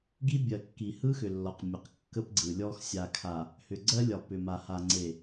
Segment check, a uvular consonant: present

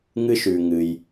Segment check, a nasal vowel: absent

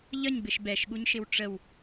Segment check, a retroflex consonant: present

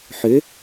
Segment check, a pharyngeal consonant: present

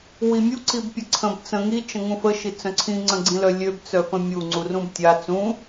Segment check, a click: present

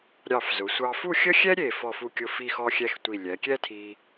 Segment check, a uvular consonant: absent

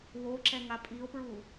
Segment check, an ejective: present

